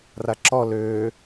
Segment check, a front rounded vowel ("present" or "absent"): present